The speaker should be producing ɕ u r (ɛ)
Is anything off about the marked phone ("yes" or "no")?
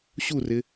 yes